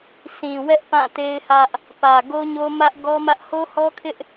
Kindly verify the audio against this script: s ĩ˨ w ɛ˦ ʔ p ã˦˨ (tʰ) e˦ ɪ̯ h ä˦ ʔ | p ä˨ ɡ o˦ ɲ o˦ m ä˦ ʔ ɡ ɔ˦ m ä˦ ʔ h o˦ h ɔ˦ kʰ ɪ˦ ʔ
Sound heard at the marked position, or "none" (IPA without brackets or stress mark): t